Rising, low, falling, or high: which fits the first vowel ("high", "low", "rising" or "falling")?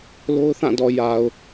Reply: high